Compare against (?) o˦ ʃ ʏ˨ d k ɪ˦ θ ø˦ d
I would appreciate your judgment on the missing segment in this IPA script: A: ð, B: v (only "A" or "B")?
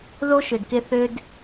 A